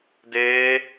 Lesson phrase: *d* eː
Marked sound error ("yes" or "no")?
no